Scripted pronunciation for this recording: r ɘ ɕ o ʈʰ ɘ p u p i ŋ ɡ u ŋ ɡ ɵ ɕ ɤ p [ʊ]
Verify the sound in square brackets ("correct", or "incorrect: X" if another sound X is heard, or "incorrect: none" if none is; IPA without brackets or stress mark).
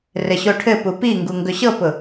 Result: correct